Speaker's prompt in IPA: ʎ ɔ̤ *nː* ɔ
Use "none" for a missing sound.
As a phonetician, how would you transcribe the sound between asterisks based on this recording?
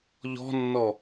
nː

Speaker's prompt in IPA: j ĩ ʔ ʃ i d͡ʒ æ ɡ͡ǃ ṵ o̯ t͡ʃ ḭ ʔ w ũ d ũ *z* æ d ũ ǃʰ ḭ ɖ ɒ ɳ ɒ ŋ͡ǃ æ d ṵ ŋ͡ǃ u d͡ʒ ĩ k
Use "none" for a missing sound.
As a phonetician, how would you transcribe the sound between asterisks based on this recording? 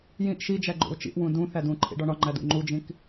θ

